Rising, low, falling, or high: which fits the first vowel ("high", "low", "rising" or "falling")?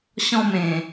falling